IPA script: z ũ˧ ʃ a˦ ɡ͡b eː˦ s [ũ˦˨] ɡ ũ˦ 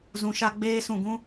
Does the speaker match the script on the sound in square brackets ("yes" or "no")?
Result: yes